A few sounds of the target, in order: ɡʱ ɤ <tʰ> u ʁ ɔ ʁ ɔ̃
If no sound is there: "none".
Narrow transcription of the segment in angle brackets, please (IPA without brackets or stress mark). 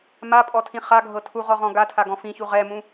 tʰ